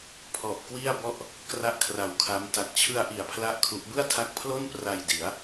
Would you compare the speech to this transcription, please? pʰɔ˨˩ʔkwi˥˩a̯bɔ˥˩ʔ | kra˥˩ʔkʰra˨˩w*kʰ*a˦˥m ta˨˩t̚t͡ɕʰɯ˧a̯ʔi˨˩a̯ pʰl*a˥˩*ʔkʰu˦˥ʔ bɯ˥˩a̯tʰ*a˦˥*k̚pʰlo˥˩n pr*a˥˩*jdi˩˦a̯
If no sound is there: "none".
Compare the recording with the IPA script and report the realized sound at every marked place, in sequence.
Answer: kʰ, a˥˩, a˦˥, a˧

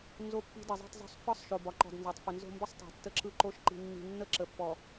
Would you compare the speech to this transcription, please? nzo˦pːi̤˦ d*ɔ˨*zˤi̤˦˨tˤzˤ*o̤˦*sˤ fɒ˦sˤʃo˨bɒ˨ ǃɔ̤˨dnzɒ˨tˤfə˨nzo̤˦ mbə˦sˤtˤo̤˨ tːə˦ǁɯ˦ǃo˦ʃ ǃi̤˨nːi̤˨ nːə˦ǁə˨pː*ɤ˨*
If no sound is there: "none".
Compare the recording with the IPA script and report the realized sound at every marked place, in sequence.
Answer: ə˨, o̤˦, ɔ˨

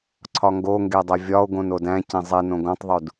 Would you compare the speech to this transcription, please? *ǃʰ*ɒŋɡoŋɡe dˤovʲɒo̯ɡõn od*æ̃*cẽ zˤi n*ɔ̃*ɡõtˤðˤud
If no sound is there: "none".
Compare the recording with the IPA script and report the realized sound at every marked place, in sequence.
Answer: ǀʰ, æ̃, õ

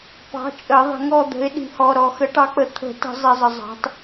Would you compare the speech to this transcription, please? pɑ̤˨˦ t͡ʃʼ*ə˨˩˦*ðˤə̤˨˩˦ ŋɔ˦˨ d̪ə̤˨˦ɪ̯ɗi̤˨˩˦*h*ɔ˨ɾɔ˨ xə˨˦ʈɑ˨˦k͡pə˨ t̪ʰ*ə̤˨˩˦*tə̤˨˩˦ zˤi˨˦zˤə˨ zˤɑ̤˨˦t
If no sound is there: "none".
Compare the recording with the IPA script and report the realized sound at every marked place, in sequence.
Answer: ə˨˩˦, h, ə̤˨˩˦

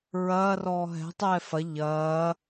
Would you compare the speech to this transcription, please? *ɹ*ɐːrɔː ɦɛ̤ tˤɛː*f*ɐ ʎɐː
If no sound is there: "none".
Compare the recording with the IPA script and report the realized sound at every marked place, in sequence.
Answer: ɹ, f

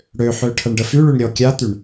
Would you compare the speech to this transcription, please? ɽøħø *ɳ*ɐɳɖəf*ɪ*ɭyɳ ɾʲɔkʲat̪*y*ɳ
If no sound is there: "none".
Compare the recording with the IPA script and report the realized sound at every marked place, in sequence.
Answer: ʈʰ, y, y

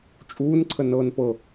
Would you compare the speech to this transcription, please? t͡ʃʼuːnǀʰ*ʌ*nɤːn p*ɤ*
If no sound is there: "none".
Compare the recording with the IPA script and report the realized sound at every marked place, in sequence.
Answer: ə, ɤ

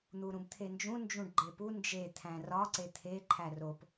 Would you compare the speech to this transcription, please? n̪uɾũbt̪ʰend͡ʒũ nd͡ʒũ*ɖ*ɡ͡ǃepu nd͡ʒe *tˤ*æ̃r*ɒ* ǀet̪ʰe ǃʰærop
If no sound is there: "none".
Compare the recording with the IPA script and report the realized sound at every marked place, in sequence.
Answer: ɖ, t̪ʰ, ɒ

